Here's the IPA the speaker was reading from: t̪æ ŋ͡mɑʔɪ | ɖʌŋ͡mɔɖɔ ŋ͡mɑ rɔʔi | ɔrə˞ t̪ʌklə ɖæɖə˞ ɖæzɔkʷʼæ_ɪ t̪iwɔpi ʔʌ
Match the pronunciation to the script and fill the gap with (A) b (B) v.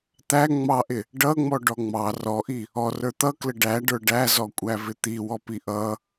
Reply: B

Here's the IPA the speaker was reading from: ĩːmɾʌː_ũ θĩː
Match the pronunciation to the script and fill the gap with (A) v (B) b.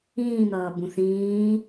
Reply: B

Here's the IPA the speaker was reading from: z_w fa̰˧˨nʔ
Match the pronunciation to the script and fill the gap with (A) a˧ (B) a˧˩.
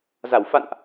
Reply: B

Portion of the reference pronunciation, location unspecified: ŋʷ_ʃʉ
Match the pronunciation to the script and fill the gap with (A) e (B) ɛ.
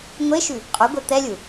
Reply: A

